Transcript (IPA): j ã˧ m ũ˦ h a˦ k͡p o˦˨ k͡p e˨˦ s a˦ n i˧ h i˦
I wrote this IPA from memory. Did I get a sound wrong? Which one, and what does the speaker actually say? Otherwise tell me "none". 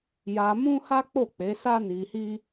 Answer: ã˧ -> a˧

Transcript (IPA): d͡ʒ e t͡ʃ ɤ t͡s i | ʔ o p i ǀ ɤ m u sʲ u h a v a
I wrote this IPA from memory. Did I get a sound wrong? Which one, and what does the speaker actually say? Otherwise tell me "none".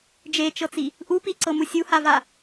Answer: o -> u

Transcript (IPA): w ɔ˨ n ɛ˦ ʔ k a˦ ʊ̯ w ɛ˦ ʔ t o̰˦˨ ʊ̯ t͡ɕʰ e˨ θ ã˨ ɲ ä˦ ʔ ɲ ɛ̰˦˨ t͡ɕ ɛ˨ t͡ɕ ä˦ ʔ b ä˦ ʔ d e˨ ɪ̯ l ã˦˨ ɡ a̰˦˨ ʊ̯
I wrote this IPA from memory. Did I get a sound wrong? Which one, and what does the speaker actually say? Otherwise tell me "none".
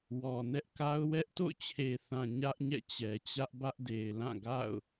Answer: none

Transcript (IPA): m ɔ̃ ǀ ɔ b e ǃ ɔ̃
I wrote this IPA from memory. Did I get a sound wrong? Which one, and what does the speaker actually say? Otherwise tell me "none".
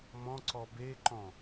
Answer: none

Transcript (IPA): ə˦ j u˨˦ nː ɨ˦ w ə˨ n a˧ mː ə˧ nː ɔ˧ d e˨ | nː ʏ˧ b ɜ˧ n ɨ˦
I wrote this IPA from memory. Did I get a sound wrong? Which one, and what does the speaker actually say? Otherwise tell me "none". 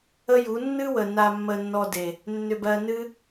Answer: none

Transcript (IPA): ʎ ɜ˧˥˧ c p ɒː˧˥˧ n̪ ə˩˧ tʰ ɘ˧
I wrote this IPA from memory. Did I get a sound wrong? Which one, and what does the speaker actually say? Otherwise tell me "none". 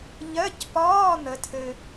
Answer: none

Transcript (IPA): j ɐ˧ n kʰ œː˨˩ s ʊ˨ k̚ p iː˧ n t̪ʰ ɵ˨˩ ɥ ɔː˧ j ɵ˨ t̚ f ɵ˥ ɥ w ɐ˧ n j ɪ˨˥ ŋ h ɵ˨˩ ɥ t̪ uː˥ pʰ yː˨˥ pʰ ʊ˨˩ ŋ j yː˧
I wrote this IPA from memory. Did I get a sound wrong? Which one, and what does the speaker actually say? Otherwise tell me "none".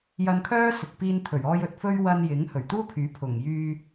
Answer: œː˨˩ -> œː˥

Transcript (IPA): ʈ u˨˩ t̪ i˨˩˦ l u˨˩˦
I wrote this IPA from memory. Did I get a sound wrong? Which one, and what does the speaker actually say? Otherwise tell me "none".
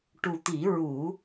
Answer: l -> ɹ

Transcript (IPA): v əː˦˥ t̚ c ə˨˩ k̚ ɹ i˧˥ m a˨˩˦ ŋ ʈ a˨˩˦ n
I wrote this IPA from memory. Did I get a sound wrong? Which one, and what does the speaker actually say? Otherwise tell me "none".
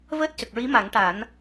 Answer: none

